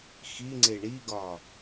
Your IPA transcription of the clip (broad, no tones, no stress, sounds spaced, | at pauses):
x i ŋ͡ǀ e ɳ i ɡ ɒ